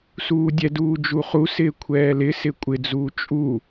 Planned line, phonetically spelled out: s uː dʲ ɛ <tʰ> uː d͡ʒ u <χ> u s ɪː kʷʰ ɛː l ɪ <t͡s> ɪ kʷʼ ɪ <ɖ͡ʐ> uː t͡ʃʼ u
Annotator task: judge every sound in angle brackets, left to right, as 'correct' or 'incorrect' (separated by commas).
incorrect, correct, incorrect, incorrect